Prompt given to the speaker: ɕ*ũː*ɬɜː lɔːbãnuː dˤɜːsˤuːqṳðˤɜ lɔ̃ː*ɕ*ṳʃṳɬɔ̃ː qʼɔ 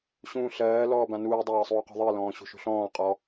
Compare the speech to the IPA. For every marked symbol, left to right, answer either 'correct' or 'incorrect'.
correct, correct

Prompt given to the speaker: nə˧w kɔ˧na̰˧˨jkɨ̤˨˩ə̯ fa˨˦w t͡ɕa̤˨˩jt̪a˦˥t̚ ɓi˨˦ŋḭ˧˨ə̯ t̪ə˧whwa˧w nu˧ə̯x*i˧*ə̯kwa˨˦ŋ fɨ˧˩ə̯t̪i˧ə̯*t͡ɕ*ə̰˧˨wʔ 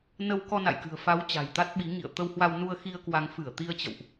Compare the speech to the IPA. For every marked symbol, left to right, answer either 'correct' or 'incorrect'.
correct, correct

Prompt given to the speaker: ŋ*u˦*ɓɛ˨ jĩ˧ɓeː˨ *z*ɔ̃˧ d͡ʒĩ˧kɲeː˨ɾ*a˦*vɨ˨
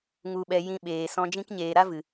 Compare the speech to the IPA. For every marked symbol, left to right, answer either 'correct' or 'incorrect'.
incorrect: u˨, incorrect: s, correct

